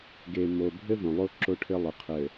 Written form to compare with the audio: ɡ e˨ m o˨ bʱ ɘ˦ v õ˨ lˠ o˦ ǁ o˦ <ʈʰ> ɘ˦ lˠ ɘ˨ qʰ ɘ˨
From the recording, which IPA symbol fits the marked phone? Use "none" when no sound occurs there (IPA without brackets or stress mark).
ʈʰ